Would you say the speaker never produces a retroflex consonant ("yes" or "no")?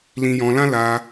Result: yes